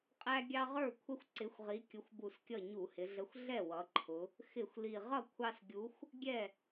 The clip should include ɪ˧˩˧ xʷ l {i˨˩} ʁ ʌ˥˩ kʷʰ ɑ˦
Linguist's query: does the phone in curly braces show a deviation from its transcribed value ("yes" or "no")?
no